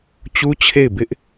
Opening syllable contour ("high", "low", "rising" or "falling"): high